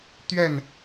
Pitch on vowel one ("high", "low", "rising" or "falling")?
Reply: falling